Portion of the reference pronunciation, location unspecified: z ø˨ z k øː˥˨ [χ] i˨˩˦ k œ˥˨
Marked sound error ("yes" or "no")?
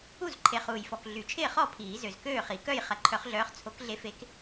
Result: no